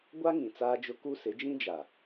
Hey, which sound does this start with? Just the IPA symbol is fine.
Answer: ɡʷ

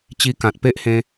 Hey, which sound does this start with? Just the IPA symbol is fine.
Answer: t͡ɕ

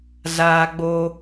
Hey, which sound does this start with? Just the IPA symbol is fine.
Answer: z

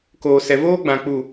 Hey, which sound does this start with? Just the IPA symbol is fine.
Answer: k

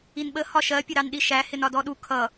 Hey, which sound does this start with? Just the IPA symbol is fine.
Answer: i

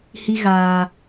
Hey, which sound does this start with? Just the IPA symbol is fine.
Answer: h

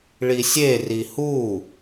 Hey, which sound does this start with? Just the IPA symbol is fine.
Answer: ɭ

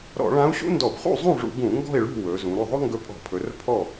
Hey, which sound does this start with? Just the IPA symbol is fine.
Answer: ɾ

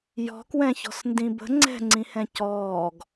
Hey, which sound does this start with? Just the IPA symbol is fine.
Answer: j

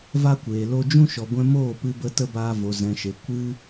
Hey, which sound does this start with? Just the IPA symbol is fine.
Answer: v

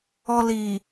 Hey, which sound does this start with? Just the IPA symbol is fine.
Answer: ɔ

